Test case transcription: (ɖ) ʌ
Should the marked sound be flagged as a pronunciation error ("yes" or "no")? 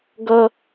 yes